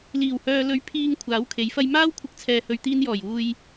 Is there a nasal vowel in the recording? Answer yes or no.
no